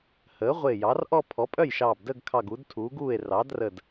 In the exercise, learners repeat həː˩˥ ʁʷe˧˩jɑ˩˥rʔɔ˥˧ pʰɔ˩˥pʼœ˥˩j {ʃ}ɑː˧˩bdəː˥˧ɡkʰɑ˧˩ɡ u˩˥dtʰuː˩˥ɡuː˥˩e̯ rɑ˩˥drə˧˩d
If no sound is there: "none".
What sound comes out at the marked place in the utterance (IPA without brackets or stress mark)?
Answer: ʃ